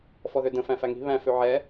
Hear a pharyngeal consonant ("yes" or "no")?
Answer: yes